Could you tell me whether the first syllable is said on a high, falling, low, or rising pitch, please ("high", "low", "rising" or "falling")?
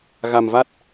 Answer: low